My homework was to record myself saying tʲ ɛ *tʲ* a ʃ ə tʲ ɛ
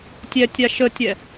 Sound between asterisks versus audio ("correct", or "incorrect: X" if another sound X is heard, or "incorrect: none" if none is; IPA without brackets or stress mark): correct